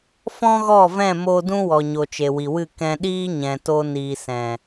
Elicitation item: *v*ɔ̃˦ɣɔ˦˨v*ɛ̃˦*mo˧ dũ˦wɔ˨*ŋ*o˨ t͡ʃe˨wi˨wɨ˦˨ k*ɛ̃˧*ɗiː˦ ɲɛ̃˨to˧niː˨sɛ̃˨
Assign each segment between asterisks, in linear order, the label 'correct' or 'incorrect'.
incorrect: f, incorrect: ɛ̃˦˨, incorrect: ɲ, correct

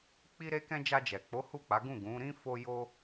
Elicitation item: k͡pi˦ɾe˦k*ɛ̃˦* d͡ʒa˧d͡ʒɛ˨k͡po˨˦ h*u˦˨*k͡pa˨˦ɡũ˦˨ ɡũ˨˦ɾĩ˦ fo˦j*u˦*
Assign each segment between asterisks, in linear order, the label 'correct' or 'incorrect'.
correct, correct, incorrect: o˦

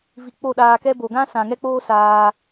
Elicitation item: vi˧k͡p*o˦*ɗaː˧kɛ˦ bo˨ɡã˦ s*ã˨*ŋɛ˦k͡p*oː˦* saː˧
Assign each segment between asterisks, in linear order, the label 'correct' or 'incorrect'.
incorrect: o˦˨, correct, correct

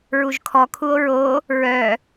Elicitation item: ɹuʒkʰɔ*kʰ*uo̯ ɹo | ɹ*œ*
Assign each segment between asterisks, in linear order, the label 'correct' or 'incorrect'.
correct, correct

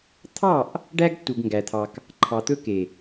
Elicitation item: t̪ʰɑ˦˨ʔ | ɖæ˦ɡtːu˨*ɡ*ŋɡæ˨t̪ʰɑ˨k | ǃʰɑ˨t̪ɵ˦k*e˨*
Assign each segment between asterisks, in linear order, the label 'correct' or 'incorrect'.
correct, correct

